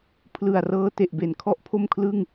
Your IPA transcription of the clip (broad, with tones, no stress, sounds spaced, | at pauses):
pʰ l ɯ˨˩ a̯ r ɤː˧ t e˨˩ ʔ b e˩˦ n kʰ ɔ˥˩ ʔ pʰ o˥˩ m kʰ l ɯ˥˩ ŋ